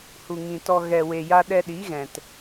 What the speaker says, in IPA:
h u˨ ŋ ĩ˨ t ɔ˨ ɣ ɛ˨ w e˨ j a˧ ɗ ɛ˧ ɗ i˨˦ ɣ ɛ̃˨ t

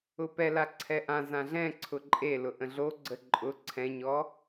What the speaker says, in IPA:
ʊ p ɛ l a ǀʰ ɛ ʔ ã z ã ɮ ɛ̃ ǀʰ ʊ ǃʼ e l ʊ ʔ ə̃ ɮ o ɡ͡ǀ ə ǃʼ ʊ ǀʰ ɛ̃ ɲ ɔ

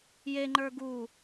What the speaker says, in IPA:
j e ŋ͡ǃ ə˞ ɡ u

